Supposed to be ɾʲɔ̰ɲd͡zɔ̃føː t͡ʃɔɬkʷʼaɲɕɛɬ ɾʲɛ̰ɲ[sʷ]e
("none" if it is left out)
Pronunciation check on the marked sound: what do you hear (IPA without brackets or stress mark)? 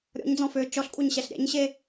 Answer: ɕ